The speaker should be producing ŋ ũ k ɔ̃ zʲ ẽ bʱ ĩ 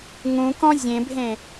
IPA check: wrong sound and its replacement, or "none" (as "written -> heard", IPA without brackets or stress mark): ĩ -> ẽ